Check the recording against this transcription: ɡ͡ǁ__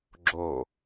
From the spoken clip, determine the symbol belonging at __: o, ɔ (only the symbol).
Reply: o